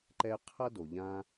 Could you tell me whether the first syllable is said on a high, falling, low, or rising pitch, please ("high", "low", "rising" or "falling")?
high